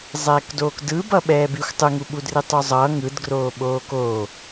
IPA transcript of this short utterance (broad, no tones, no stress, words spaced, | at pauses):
zˤɛːkdoːkdɯbʌ ɓɛːbixʷ tˤɯŋuɓudri tˤuzˤʌ ŋɯdɡroː ɓoːkoː